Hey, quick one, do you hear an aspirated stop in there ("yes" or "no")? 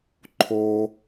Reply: yes